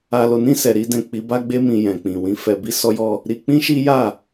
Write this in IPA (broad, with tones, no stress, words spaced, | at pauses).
a˧lo˧nĩ˦ sɛ˧ɾi˦dɛ̃˦˨ k͡pi˨˦ba˦ɡ͡be˦mĩ˧ jɛ̃˨k͡pĩ˨wĩ˨˦ fɛ˧bi˦sɔ˦jɔ˦ | ɾi˧k͡pĩ˦ʃi˦ja˦˨